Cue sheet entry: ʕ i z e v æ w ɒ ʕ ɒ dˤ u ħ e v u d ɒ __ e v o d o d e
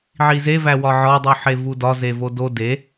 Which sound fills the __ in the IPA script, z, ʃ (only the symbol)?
z